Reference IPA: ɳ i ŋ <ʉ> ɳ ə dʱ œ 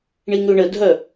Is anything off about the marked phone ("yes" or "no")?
no